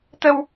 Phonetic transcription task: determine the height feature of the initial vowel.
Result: mid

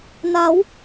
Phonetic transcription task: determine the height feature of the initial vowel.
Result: low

